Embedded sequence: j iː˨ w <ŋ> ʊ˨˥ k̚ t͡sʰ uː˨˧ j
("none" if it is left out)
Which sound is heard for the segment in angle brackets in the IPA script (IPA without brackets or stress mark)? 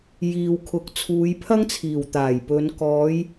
kʰ